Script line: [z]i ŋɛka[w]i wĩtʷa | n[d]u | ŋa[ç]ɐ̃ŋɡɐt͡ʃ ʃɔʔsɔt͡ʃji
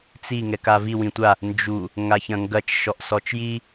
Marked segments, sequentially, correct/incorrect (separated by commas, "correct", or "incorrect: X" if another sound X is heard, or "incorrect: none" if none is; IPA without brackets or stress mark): incorrect: t͡s, incorrect: v, incorrect: d͡ʒ, correct